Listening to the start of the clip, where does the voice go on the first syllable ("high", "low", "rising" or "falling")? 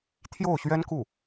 falling